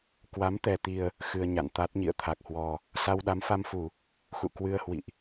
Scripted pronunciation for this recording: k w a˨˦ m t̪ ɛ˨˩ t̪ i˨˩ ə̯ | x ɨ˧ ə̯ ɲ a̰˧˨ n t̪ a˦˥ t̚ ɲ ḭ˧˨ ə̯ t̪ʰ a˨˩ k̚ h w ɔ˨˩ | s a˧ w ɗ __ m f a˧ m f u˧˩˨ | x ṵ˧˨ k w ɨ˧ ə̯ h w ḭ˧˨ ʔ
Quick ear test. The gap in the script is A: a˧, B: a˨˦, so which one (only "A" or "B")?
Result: B